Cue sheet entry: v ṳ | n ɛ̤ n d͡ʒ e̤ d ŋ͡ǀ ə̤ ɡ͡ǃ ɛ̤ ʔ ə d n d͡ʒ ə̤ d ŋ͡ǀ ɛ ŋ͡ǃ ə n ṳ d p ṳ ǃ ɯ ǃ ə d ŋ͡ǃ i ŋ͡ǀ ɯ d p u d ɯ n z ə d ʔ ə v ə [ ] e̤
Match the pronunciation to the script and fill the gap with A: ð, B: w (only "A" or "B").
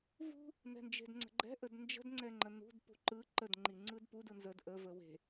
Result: B